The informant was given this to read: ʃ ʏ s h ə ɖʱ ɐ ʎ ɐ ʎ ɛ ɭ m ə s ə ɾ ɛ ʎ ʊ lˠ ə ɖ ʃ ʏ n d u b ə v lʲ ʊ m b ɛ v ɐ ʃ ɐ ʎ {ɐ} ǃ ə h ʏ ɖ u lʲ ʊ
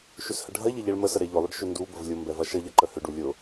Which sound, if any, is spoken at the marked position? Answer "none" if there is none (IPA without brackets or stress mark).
ɐ